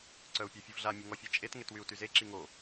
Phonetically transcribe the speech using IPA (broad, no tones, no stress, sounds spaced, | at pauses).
ǀ œ u̯ pʲ œ fʲ u v ɮ a mʲ u ŋ ɔ fʲ e t͡ʃʼ e t ŋ e t w y u̯ t y z e ǁ i ŋ o